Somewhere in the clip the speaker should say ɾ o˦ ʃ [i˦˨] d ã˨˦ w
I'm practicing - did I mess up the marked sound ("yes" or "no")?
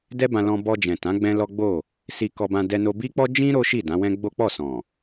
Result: no